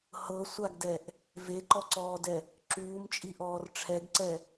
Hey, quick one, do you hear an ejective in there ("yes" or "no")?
yes